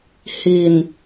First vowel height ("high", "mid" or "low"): high